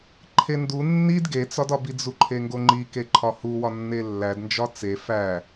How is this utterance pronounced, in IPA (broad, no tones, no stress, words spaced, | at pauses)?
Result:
ǃʰendu nːid ɡet͡sɒdɒbi d͡zuǃʰeŋɡoŋ͡ǃi keǃʰɒhuwɒ nːelːædnd͡ʒɒ t͡se fæ